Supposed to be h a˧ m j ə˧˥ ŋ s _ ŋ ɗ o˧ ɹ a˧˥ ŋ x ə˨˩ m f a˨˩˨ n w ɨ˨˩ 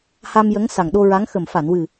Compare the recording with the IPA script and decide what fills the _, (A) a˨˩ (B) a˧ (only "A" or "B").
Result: A